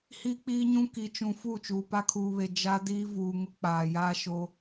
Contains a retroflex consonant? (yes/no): no